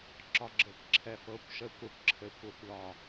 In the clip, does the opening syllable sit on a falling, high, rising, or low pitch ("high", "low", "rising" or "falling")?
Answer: low